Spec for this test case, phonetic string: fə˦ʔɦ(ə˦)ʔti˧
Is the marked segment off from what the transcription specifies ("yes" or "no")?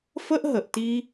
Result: yes